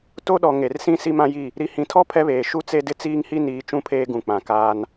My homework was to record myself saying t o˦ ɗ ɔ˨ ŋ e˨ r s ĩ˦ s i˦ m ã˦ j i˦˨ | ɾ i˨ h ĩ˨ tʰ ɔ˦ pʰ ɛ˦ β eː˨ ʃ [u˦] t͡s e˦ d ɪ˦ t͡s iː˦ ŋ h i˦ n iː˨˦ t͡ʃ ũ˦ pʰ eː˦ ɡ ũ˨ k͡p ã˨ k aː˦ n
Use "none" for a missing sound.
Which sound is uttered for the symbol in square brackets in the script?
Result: u˦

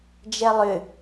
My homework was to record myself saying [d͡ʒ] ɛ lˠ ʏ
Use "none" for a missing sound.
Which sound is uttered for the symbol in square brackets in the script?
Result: d͡ʒ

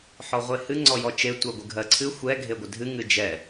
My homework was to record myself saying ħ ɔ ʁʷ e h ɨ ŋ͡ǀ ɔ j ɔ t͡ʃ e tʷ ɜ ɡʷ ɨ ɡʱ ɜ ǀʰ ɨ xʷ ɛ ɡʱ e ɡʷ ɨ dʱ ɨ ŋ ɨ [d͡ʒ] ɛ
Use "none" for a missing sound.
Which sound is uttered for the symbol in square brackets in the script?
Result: d͡ʒ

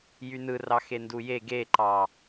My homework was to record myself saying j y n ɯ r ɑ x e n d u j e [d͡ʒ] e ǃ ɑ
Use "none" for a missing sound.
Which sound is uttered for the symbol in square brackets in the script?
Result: ɡ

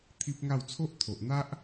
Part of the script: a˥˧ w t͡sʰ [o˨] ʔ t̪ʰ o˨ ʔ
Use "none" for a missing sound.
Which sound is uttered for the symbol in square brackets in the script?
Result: o˦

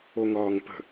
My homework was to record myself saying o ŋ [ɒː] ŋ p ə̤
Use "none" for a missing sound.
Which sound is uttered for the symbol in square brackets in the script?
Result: ɒː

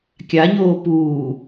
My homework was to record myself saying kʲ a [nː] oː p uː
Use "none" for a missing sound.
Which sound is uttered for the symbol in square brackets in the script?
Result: ɲ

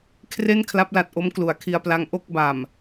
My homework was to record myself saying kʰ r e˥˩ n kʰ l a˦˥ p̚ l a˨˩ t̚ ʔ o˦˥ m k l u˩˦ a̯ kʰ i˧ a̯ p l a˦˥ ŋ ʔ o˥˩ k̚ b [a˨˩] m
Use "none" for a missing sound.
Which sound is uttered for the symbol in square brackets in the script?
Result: a˨˩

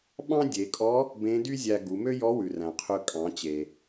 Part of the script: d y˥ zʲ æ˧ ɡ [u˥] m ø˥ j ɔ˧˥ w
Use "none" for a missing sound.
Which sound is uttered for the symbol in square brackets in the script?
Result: u˩˧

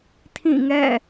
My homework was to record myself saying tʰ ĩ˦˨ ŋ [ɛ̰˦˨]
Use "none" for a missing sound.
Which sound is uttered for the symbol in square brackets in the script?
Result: ɛ̰˦˨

